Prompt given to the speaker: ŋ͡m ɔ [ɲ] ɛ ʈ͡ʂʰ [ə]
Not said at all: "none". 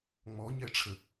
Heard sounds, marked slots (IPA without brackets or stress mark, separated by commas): ɲ, ə